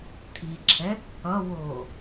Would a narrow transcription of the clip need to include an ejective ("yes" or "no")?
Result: no